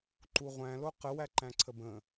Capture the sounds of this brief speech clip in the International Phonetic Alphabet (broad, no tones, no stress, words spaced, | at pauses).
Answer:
ǃuʁʷæ̃ loqə wæǃæ̃ǀʰəbə̃